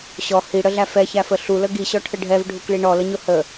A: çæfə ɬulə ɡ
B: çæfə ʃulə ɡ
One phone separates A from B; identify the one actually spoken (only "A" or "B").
A